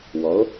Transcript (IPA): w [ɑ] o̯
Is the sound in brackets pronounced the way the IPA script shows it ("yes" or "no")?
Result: no